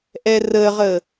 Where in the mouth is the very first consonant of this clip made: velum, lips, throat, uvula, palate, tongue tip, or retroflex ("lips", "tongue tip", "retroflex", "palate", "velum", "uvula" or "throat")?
throat